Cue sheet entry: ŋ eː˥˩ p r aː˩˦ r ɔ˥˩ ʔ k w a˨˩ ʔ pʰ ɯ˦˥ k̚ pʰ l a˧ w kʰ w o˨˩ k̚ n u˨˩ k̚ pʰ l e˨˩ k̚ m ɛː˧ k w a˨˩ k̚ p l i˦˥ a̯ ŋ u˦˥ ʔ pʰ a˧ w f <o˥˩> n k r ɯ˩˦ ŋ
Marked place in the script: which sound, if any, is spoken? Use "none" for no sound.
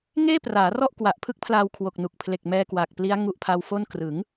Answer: o˥˩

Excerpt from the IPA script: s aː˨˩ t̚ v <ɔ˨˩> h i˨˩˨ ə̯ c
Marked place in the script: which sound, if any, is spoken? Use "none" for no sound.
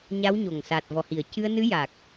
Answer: ɔ˨˩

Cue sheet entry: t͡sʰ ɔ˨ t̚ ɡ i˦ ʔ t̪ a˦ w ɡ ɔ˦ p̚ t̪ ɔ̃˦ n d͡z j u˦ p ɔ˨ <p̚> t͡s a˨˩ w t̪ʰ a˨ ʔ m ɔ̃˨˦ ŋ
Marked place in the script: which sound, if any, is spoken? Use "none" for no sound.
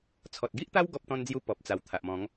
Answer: p̚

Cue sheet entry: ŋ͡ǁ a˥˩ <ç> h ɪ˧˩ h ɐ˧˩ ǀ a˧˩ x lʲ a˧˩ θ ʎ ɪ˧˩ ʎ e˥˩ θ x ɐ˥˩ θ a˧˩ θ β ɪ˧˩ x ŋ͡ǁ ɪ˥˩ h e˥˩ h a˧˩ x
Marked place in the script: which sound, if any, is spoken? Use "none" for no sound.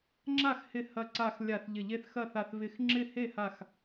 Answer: x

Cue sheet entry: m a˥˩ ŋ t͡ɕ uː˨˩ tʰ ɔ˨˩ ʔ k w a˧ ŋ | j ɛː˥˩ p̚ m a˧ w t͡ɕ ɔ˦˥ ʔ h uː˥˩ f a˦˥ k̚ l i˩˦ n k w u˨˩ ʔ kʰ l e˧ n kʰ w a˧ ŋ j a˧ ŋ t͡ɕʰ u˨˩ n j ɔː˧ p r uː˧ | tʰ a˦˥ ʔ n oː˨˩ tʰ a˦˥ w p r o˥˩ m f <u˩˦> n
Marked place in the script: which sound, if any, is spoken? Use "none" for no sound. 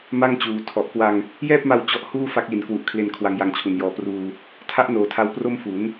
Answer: u˩˦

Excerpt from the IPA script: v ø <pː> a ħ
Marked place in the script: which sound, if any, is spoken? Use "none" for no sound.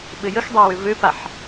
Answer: p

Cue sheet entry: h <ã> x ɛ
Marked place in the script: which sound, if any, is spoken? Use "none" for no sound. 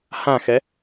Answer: ã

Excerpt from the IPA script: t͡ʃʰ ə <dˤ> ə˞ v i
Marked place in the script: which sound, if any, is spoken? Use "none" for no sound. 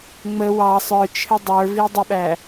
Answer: dˤ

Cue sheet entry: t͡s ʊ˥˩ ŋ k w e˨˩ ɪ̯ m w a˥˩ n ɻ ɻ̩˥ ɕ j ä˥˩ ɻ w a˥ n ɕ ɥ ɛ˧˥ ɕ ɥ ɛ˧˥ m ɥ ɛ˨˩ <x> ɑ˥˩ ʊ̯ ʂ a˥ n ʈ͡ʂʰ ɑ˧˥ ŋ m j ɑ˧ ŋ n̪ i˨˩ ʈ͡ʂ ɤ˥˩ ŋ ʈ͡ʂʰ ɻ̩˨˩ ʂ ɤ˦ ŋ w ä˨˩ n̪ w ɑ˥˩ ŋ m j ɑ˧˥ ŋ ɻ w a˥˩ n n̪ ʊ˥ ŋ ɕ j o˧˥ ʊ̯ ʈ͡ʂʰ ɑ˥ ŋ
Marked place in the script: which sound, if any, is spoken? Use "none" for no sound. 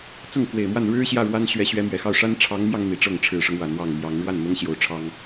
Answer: x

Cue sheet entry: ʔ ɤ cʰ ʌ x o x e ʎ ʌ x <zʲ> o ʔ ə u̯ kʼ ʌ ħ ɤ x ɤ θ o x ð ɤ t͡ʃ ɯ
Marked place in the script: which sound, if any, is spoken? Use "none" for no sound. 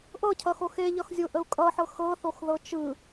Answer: zʲ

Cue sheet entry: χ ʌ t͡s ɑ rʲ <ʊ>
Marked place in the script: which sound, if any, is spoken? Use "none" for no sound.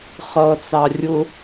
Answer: ʊ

